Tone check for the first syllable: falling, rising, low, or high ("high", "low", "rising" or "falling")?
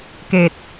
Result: low